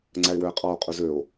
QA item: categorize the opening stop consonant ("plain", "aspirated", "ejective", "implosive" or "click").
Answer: click